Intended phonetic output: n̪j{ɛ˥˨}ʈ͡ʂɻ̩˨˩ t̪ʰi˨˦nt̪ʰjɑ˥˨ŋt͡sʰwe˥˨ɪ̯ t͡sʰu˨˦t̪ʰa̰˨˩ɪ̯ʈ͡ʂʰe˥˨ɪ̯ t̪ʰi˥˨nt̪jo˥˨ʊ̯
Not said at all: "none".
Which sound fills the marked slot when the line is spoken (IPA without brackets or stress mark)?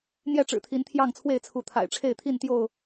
ɛ˥˨